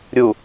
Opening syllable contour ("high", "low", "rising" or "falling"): low